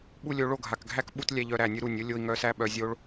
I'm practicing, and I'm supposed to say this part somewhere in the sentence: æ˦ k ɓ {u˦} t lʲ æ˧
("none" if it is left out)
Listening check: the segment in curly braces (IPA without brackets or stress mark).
u˦